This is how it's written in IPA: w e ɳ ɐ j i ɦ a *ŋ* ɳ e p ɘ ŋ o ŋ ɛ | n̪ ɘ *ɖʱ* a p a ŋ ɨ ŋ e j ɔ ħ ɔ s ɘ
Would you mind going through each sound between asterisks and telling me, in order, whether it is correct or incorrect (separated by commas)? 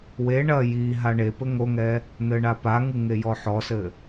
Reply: incorrect, incorrect